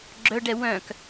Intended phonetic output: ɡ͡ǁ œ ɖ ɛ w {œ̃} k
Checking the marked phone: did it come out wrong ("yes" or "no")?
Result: no